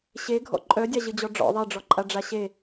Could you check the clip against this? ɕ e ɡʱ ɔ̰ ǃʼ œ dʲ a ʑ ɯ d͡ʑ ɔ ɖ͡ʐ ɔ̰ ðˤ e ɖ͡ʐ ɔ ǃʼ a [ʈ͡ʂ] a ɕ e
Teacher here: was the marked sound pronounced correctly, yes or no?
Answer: no